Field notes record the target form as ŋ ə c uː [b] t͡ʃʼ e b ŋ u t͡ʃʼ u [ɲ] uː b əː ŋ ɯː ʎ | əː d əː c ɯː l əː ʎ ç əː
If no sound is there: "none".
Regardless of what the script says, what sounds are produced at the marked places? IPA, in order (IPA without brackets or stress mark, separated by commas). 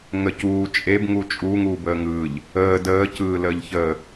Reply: none, ŋ